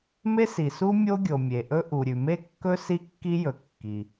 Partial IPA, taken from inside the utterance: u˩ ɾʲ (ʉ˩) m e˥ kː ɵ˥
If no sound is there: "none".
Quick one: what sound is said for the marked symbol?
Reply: ʉ˩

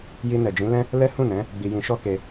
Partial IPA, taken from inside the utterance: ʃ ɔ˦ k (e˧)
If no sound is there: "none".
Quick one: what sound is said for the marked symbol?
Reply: e˧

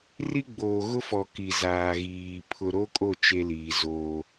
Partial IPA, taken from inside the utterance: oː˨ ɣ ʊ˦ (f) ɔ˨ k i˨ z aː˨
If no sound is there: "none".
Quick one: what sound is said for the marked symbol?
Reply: f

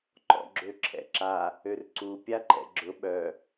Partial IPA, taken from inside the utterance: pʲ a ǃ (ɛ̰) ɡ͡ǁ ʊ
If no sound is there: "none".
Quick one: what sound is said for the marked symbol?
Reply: ɛ̰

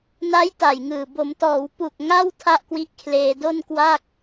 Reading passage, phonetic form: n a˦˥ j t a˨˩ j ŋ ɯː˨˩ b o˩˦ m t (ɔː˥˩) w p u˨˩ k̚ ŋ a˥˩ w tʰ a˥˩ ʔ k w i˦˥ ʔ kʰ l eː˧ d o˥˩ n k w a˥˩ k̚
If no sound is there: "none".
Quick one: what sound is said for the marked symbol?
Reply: ɔː˩˦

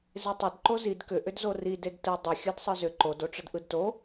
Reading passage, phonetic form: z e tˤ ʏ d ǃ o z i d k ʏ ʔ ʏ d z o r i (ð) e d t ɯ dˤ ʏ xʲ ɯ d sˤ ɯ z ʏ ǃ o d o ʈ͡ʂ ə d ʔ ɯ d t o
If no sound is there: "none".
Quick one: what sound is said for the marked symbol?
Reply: d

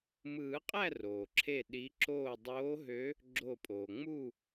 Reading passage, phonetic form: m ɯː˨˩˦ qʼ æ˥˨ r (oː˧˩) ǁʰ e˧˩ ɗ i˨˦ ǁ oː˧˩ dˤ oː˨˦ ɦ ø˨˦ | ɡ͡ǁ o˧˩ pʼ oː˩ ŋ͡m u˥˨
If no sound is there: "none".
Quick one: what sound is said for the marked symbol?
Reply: oː˩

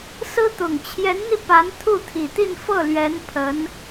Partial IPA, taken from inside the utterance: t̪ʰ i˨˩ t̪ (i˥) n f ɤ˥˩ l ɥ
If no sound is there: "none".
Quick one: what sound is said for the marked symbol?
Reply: i˥˧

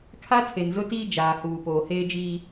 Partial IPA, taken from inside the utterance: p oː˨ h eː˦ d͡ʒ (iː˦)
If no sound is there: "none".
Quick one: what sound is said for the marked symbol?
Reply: iː˦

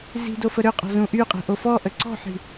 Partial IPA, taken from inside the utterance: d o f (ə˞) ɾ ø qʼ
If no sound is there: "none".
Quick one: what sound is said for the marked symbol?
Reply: ə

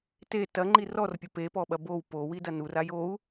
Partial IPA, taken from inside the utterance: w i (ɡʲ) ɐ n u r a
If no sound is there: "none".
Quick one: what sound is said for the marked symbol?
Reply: d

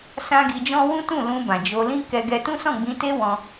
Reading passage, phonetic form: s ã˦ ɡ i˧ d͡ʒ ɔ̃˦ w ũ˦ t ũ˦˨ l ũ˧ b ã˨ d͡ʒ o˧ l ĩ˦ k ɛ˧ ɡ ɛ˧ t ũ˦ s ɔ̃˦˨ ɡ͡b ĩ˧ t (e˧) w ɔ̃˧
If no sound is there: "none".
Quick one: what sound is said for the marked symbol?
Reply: e˦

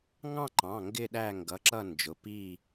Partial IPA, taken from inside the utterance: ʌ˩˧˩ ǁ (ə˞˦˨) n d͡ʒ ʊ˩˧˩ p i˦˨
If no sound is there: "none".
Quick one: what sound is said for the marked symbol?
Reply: ʌ˦˨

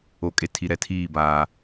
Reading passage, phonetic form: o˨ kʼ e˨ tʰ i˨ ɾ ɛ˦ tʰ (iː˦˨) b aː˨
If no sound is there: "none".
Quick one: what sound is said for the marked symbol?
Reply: iː˦˨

